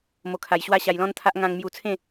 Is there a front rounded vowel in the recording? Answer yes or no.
no